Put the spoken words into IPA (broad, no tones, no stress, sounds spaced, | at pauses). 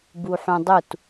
b u ħ ũ dˤ u t